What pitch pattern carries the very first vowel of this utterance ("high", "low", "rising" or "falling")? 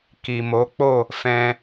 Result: low